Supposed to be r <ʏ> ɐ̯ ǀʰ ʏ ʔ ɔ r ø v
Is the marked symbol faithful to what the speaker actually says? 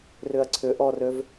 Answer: yes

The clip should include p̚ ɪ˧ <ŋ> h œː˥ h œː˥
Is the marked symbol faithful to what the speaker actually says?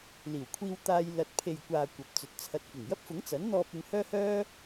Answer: yes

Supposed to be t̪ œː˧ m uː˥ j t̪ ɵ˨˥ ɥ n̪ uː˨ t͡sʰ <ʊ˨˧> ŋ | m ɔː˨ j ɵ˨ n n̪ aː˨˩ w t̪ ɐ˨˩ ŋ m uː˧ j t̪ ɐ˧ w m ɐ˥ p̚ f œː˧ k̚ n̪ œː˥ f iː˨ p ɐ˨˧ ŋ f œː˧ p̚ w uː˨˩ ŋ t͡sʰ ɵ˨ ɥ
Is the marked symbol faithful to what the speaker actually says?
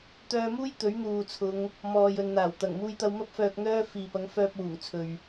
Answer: yes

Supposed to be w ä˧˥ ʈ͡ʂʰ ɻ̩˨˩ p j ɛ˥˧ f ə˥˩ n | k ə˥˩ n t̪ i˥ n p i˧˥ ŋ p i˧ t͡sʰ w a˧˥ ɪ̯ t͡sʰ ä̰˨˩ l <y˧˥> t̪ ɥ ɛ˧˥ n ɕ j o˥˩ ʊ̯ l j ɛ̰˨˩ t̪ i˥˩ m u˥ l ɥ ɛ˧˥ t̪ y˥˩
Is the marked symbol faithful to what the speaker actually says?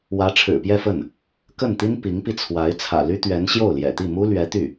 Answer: no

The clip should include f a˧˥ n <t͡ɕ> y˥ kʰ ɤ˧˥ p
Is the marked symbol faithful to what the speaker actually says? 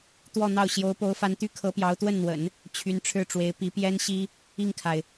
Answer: no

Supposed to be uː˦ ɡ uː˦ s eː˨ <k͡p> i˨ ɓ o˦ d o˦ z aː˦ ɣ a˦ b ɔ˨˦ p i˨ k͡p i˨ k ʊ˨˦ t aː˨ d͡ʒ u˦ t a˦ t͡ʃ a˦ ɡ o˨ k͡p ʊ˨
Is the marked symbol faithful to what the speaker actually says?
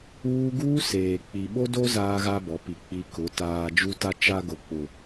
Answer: yes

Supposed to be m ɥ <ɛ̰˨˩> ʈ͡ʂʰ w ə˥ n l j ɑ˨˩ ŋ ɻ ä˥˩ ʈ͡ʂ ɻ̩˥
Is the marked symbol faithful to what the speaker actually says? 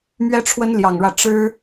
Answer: no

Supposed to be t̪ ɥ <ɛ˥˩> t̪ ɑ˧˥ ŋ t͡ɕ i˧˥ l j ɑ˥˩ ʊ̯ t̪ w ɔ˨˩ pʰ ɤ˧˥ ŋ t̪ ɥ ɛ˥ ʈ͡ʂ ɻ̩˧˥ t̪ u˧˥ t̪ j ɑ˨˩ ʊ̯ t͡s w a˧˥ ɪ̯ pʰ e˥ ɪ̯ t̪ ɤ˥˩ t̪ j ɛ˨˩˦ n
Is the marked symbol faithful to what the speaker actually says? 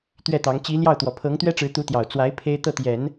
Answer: yes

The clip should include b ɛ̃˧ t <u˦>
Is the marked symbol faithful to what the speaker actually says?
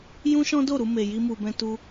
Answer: no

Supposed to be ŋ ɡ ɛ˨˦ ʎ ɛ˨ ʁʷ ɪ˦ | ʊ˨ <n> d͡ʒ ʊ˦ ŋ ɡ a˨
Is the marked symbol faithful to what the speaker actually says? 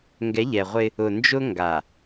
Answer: yes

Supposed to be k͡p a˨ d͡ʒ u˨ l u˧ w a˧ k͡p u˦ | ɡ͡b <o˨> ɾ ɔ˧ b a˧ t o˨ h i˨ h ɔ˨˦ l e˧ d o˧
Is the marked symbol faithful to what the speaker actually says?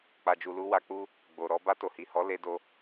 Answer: yes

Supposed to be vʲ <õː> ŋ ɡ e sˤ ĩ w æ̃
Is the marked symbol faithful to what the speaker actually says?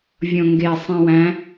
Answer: no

